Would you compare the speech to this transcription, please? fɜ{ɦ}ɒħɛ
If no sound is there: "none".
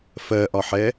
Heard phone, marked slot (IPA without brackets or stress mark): ʔ